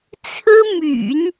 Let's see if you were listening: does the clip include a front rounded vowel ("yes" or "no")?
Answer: yes